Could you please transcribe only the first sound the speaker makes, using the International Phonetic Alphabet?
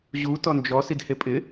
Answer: ʑ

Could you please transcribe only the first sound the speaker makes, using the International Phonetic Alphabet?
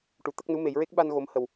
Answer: ʈ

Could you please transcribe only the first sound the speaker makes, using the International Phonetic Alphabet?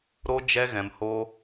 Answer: ɾ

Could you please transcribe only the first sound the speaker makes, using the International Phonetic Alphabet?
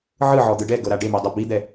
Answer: ʕ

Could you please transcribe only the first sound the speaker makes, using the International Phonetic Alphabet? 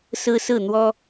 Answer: s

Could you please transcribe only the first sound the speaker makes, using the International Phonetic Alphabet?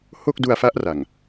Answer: h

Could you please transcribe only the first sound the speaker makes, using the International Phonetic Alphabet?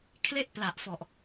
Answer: kʰ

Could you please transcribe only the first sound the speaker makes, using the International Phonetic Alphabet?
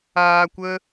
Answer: aː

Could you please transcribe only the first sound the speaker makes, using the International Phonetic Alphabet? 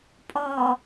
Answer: pʼ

